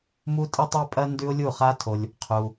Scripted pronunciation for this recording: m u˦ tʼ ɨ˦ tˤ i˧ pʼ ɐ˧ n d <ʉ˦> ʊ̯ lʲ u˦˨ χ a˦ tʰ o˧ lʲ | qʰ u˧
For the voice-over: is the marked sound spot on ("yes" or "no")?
yes